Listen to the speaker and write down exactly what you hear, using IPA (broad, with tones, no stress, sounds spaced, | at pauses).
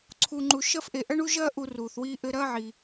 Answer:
ǀʰ u˧ ŋ͡ǃ u˧ ʃ ɐ˦ f ʔ e˧ ʔ ɐ˦ ɳ u˦ ʒ ɐː˦ ʔ u˧ r uː˨ θ w iː˧ ʔ ɘ˧ ɾ ɐː˦ ʕ i˧